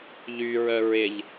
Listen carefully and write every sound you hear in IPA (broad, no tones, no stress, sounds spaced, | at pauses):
ʎ y ɹ œ ɹ ɪ ʎ